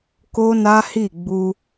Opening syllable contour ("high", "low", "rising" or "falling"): high